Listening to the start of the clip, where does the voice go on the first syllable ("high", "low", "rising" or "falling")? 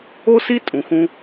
high